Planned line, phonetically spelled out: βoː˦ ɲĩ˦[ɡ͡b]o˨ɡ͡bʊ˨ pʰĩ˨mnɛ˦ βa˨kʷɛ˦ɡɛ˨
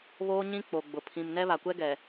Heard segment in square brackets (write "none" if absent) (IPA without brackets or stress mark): k͡p